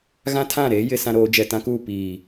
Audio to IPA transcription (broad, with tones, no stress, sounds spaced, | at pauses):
ɣ ã˦ tʰ ã˦˨ ɾ eː˦ j ɪ˨ s ã˦ ɾ oː˨˦ d͡ʒ ɛ˨ t ã˦ k uː˦˨ p iː˨